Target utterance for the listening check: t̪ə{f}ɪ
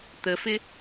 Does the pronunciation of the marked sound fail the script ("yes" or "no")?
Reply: no